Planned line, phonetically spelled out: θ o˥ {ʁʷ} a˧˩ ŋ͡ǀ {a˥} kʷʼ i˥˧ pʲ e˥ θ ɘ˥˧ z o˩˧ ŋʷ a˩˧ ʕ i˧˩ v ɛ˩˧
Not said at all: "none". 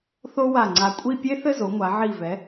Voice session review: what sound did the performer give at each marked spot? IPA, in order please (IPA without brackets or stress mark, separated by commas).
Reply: w, a˧